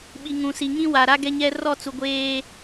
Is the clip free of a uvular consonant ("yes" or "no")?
yes